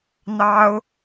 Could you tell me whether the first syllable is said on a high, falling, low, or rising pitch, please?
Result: high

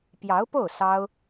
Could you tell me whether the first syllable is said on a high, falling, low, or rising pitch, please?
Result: rising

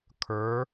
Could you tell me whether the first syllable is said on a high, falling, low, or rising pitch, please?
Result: rising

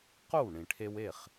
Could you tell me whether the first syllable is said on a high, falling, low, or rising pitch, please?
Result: falling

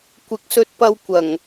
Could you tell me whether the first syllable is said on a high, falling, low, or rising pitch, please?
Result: low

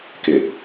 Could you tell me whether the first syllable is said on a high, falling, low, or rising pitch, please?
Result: low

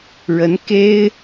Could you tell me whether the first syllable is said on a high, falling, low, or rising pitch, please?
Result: rising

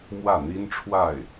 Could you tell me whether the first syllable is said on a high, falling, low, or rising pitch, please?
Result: falling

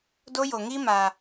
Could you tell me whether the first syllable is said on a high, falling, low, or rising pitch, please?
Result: high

